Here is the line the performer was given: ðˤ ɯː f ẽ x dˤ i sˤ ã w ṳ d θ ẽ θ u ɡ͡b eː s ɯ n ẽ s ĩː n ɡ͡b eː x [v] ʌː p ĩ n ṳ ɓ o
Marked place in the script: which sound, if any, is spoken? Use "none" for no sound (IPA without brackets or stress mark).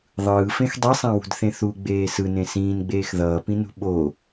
ð